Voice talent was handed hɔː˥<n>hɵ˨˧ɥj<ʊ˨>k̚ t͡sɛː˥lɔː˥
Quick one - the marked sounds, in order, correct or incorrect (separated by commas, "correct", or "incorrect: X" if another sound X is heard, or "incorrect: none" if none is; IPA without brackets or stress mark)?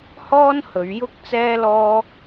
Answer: correct, incorrect: ʊ˥